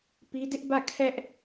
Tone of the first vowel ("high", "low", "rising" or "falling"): high